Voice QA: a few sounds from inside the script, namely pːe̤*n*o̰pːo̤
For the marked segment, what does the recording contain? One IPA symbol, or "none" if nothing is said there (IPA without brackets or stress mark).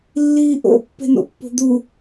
n